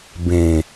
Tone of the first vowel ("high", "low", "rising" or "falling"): low